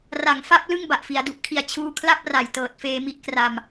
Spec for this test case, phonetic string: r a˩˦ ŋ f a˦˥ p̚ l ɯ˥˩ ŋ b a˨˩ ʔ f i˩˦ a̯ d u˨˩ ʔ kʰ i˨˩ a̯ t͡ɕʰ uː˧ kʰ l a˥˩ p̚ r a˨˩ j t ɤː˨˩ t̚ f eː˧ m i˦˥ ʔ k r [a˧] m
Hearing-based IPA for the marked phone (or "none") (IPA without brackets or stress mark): a˧